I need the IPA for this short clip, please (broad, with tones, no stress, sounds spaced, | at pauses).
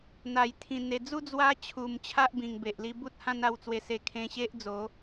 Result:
n̪ a˨˩ j t̪ʰ ĩ˨˩ n̪ e˨˩ d͡z u˦ d͡z w a˧ t͡ɕʰ u˨˩ m t͡ɕʰ a˦ ʔ b ĩ˨˩ ŋ b e˨ ʔ l i˧ b u˦ t̚ h ã˦ n a˥˧ w t͡s w e˧ s e˧ kʰ ẽ˧ ɕ e˦ ʔ d͡z o˨˦